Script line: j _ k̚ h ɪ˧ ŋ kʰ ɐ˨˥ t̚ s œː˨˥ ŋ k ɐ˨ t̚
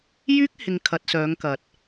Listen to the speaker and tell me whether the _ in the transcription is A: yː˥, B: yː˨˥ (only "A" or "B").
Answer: A